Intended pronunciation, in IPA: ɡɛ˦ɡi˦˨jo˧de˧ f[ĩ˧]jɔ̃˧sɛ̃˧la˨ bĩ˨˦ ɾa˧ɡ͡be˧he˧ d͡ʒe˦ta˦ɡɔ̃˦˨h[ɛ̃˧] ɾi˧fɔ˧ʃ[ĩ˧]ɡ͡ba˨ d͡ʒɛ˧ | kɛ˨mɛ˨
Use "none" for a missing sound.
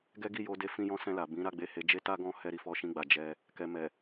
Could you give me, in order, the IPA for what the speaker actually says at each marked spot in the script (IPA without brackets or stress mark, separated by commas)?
ĩ˧, ɛ˧, ĩ˧